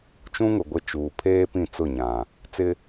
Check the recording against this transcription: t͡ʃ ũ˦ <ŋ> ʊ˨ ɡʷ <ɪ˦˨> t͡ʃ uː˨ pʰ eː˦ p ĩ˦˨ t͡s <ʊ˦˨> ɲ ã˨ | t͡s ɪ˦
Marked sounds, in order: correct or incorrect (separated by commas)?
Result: correct, correct, correct